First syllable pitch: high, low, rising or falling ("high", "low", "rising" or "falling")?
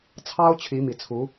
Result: high